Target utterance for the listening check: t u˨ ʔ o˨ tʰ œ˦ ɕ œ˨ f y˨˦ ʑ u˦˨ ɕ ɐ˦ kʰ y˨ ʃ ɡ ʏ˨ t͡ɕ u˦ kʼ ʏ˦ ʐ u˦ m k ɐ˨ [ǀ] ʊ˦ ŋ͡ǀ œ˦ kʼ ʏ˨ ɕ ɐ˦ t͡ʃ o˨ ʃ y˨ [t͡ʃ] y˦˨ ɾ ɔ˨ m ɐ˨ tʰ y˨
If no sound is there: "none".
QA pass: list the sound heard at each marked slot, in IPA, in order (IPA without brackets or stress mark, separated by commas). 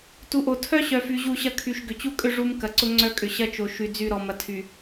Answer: ǀ, d͡z